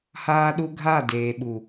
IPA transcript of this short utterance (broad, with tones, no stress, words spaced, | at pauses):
haː˦ɗu˦ ɡʱa˦˨deː˨ɓu˨